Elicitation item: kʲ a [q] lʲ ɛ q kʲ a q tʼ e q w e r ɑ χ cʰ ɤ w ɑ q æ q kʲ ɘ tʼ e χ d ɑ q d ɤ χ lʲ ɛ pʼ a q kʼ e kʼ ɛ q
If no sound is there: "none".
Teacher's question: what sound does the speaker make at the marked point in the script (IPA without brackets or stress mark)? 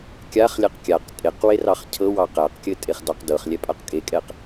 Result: χ